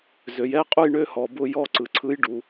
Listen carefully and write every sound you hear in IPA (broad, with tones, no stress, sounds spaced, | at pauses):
z ø˨ j ɛ˧˥˧ qʼ u˥˨ j ɳ ø˧˥˧ h ɔ˨ b ʊ˧˥˧ j ɔ˧˥˧ ǀ ɯ˨ ǀʰ ɯ˧˥ j ɖ u˨